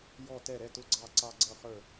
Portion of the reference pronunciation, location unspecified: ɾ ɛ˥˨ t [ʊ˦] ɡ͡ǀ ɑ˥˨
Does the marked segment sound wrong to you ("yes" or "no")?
no